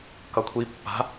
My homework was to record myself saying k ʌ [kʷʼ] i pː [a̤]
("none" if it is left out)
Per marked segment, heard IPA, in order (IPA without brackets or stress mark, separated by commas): kʷʰ, a̤